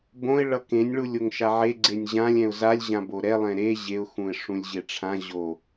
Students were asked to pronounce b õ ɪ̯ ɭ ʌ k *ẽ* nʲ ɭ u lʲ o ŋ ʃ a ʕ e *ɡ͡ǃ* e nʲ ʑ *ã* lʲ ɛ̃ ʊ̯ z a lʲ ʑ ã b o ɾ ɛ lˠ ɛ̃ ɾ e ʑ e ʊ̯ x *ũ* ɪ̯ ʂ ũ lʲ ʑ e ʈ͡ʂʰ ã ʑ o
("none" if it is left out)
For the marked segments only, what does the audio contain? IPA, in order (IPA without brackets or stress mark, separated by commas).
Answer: ẽ, ɡ͡ǀ, ã, ũ